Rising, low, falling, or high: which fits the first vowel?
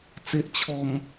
low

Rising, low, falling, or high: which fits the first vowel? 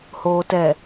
low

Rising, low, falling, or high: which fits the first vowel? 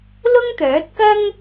high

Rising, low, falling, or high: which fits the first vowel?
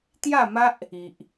falling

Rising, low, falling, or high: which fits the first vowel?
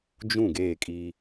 falling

